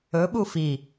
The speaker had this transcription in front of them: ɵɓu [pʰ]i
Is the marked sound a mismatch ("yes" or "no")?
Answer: yes